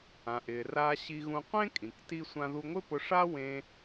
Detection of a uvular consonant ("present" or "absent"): present